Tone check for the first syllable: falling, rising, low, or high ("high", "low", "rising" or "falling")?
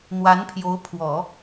rising